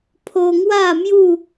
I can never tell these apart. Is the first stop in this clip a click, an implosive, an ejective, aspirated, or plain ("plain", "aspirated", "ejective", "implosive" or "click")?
aspirated